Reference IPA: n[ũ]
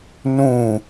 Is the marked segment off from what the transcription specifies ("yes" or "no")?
no